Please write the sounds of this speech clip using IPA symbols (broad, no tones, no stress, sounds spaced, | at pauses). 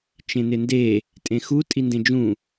t͡ʃ ẽ n ɪ n d e | tʼ ẽ x u tʼ i n d ẽ d͡ʒ ũ